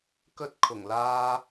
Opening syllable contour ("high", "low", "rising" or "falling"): high